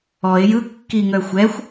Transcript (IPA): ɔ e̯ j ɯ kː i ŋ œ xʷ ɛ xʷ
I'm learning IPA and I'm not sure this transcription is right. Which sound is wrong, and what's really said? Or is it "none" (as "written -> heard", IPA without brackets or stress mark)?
none